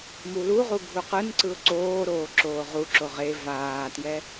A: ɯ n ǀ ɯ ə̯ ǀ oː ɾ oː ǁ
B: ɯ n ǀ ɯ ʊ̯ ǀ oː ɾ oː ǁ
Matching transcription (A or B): B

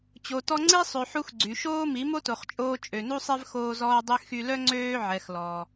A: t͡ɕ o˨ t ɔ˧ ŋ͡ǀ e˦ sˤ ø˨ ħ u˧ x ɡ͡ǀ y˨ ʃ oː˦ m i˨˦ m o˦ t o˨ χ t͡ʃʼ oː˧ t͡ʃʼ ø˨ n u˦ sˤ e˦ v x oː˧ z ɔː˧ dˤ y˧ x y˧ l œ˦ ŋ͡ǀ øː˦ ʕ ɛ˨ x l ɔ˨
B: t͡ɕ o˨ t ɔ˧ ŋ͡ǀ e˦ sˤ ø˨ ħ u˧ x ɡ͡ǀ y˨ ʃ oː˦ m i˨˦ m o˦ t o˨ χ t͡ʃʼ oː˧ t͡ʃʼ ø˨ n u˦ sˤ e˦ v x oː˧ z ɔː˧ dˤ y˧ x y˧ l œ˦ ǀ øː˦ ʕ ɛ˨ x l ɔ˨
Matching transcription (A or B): A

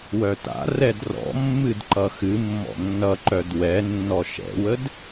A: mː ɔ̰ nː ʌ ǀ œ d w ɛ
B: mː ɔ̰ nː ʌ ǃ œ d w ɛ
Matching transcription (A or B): B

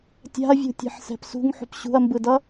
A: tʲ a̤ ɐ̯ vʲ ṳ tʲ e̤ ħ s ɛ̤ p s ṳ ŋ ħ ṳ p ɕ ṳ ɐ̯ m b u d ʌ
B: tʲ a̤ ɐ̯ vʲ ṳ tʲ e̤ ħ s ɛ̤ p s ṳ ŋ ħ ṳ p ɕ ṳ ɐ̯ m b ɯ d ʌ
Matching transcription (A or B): B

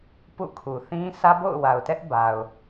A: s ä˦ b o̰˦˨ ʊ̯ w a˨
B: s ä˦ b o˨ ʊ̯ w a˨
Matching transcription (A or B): A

